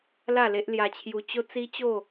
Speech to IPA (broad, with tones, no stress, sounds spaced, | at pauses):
l a˥˧ l e˦ ʔ l j a˧ t͡ɕʰ j u˧ t͡ɕ o˧ t͡s i˦ t͡ɕ o˥˧